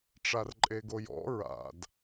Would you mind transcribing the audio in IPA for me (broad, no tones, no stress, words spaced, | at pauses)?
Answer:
ʈ͡ʂarǃʼeɡojɔ̰ ɹa̰d